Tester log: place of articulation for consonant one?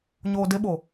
palatal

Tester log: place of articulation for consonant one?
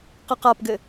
uvular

